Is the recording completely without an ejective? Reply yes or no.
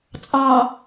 no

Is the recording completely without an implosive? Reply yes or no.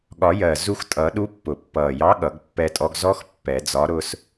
no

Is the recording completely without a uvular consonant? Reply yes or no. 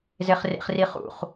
no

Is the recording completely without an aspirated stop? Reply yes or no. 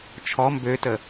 no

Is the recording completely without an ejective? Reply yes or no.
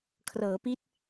yes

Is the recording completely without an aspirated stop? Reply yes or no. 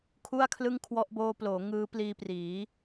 no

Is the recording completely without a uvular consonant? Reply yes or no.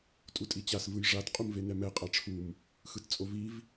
no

